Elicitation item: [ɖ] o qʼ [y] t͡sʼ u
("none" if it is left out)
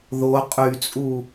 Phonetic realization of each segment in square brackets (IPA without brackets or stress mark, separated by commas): ð, y